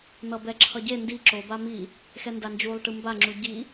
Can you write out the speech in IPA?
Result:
n̪ʌbɛǁʰʌɟe ndi ǁo bami | xɛndand͡ʒulˠ ʈɯmba ŋ͡ǁuɟi

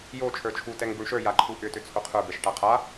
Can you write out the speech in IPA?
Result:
jo t͡ʃʰə˞t͡ʃʰu tɛŋbuɳʃə˞ jaǃʰuʔʏ tʏt͡sʰoqʰə˞ bɛʃʈaqʰa

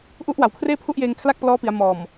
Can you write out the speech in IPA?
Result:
ʔu˦˥ʔ wa˨˩wkʰreː˥˩pʰu˥˩ʔjeː˧ŋ kʰla˥˩k̚plɔː˦˥pi˩˦a̯ mɔː˨˩m

